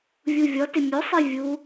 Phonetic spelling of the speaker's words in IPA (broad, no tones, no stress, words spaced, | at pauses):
vʲuvʲɔtɪ mʲosˤi vʲu